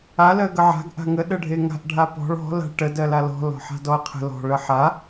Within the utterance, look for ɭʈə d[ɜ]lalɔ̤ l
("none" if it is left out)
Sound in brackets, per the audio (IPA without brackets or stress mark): ɜ